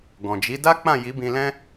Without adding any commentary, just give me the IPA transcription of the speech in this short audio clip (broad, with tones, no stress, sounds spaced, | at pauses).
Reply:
ɡ ɔ̃˨ d͡ʒ i˨˦ d a˦ k͡p ã˦˨ j i˨˦ b ĩ˧ l ɛ̃˦